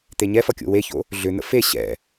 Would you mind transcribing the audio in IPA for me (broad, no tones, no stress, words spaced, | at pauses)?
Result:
t̪eɲɛfʌ kʲo̰weço̰ | ɮʏn̪ə̰ fe ɕɛ̰